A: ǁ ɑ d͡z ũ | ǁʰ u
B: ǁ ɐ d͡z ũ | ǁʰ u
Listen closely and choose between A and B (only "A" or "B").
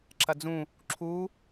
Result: B